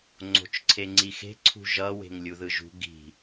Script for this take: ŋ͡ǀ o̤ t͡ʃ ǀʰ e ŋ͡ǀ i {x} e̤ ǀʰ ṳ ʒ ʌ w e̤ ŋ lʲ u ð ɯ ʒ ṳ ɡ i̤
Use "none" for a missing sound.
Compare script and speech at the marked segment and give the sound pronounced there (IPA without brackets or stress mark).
x